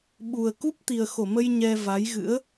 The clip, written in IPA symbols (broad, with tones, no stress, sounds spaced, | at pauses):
ɓ u˨˩ ə̯ k u˦˥ p̚ t̪ i˨˩ ə̯ x o˧˩ m ə˧ j ɲ ɛ˧ v a˨˦ j ɣ ɨ̰˧˥ ə̯